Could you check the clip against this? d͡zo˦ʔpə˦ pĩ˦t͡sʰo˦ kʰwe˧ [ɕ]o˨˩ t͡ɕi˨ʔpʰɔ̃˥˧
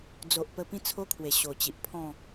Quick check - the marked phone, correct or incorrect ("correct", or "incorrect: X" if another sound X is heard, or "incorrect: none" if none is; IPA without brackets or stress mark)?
correct